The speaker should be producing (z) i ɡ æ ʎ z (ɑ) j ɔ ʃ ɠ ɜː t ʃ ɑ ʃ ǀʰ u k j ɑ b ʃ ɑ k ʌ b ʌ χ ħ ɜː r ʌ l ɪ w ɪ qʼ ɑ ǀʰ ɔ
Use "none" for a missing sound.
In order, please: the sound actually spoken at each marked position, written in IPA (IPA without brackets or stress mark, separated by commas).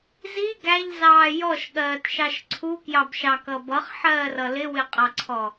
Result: z, ɑː